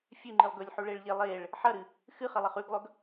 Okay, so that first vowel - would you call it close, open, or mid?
close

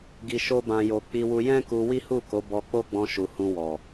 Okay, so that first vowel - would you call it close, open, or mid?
close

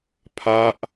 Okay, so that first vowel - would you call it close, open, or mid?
open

